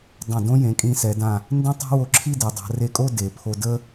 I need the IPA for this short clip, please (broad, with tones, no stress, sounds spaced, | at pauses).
dˤ ã˧˩ d õ˥ j ẽ˩˧ kʼ ĩ˧ s ɛ˩˧ d ã˧˩ | n d ẽ˥ tˤ a̤˥ w o˧˩ ǁʰ i˥˧ d ɛ˩˧ dˤ a̤˩˧ r e˧˩ kʼ o˥˧ d e˩˧ pʰ o˧ d ə˥